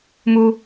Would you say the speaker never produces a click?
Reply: yes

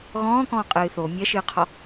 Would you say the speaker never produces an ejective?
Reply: no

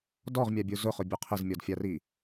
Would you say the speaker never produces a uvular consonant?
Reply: no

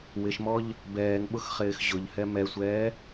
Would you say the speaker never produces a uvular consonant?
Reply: no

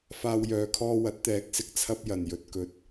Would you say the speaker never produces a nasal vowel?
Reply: yes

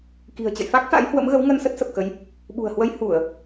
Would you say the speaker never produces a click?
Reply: yes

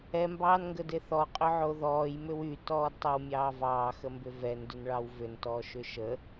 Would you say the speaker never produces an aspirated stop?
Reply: yes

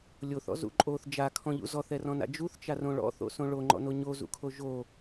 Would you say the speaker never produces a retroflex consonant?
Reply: no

